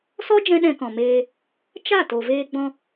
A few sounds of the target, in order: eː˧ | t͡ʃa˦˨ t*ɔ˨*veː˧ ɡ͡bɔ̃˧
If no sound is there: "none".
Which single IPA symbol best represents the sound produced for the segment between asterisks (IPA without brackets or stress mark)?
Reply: o˨